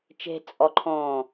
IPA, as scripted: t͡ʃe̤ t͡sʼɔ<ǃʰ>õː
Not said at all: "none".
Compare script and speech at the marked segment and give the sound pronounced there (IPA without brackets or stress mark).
ǃʰ